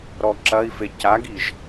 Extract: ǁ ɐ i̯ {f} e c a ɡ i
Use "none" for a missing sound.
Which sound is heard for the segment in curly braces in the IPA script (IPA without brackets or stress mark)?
f